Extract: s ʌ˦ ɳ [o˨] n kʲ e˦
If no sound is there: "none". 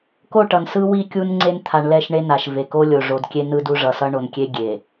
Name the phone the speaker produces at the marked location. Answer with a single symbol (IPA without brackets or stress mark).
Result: o˨